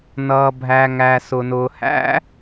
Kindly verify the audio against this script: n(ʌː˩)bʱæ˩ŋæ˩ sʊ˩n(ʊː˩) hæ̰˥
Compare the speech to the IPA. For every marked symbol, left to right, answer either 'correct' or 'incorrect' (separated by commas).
correct, correct